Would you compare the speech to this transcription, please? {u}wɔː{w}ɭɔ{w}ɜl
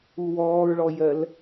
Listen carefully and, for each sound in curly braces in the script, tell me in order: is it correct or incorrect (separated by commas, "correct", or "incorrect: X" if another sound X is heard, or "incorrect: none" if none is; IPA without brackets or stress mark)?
correct, incorrect: ɹ, incorrect: j